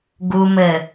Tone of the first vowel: low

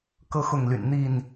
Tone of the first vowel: high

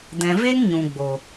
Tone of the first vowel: low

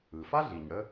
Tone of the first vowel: low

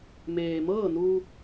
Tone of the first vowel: low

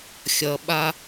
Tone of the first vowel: low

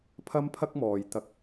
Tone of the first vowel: high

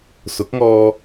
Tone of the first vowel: rising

